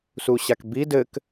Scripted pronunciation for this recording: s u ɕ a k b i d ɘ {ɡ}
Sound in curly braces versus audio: incorrect: k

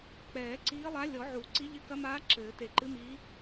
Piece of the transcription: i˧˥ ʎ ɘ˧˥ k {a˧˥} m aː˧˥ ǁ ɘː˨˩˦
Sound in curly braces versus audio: incorrect: ɐ˧˥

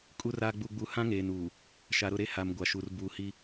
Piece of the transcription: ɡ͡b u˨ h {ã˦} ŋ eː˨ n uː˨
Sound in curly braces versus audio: correct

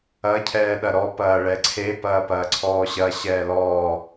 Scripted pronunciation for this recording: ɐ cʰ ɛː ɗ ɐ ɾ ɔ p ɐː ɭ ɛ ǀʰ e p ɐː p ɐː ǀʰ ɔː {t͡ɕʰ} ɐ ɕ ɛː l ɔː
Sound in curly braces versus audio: incorrect: ɕ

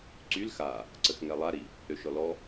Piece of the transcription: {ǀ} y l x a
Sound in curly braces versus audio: correct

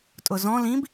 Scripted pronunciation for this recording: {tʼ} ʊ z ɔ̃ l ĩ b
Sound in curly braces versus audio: correct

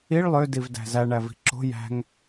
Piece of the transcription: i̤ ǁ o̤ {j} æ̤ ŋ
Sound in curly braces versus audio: correct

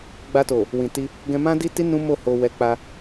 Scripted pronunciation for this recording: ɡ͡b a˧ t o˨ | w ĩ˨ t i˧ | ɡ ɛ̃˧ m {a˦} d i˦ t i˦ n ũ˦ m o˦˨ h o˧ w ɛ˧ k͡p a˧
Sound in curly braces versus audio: incorrect: ã˦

